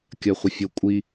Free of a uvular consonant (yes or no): no